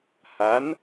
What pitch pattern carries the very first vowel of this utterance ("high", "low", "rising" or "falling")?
rising